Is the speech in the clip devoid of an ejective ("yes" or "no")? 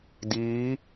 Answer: yes